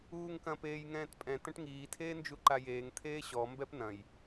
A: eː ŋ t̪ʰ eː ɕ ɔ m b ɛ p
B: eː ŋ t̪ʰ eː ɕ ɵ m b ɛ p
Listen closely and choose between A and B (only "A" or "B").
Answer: A